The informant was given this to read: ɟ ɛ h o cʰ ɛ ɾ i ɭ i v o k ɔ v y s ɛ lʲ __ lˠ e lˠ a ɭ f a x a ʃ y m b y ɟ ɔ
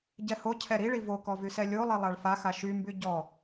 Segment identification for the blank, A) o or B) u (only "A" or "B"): A